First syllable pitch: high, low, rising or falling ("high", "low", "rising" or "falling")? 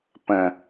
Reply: low